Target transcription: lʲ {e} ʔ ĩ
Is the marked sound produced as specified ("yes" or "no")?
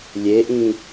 yes